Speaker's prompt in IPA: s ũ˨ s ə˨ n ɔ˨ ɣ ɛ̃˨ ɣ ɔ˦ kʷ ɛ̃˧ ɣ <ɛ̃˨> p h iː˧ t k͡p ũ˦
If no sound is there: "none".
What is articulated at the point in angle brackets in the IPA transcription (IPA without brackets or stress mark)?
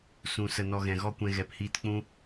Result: ɛ˨